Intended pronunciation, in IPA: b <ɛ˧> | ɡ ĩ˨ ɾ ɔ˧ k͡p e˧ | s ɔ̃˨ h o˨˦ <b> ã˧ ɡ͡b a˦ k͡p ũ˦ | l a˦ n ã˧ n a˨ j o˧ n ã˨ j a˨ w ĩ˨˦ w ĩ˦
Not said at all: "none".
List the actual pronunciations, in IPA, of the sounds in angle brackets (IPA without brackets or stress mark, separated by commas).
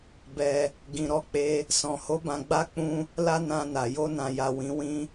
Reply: ɛ˧, b